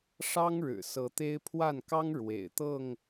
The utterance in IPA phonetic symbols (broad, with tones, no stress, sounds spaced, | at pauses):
ʂ ɑ˦ ŋ ɻ ɻ̩˨˩ s ɤ˨˦ t̪ e˦ ɪ̯ pʰ w a˥˨ n k ɑ˦ ŋ ɻ w ḛ˨˩ ɪ̯ t̪ ɤ˥˨ ŋ